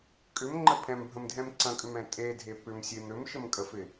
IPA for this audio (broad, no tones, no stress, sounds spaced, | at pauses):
kʼ ʏ m ŋ͡ǃ ə pʰ ɛ̃ m bʱ ə̃ m dʱ ɛ̃ m ǀ ɐ̃ kʼ ʏ m ɛ̃ tʼ e dʱ e p ʏ m sʲ e m ɾ ʏ m ʃ ə m kʼ ə f ɪ